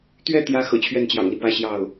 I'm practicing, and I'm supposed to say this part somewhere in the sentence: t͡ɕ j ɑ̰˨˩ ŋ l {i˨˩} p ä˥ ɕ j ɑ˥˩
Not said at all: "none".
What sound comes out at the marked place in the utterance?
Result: i˦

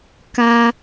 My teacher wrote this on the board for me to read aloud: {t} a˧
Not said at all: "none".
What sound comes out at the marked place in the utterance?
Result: k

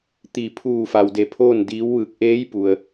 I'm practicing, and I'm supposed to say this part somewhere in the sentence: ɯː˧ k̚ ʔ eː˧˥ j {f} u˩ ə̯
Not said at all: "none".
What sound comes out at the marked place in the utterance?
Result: p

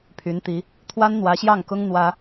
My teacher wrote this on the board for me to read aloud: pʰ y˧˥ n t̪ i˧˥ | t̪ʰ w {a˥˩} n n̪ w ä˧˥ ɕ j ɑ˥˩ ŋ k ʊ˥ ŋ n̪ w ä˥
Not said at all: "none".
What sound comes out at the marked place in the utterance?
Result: a˥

